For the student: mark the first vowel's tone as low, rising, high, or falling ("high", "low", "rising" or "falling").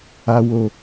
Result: low